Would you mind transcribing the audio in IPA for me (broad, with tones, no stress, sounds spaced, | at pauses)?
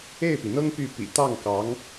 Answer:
e˥˩ ɪ̯ p i˩ n̪ ɤ˥ ŋ p y˥˩ p ḭ˨˩ t̪ ɑ˥˩ ŋ k ɑ˧˥ ŋ